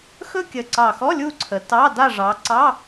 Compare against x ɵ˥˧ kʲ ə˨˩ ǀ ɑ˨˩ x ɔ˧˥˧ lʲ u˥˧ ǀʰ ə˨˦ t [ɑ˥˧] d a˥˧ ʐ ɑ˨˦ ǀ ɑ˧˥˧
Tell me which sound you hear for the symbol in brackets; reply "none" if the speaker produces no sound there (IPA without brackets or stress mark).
ɑ˧˥˧